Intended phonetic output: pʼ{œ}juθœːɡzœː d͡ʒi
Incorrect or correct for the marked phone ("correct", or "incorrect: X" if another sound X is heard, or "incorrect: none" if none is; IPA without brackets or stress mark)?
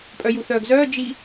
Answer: correct